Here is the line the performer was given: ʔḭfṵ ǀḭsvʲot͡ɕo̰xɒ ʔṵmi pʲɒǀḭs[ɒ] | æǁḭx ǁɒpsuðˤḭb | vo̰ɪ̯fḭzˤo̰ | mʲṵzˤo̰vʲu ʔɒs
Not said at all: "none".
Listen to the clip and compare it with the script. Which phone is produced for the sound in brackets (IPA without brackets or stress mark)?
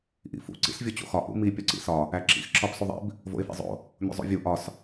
ɒ